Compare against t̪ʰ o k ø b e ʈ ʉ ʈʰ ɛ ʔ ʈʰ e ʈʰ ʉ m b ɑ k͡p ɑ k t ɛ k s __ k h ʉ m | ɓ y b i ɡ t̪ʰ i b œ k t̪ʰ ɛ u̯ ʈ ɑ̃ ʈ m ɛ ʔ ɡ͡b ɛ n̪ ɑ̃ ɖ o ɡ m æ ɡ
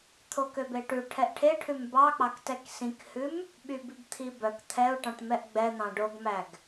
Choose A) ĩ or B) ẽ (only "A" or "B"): A